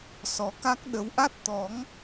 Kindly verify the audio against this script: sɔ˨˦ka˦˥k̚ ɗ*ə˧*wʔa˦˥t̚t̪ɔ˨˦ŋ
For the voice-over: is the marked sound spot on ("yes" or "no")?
no